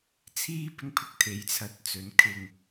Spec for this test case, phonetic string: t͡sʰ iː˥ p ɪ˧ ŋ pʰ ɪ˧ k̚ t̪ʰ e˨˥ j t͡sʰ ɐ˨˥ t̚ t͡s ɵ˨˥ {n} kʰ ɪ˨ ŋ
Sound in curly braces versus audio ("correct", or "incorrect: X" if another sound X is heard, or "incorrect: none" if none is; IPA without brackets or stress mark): correct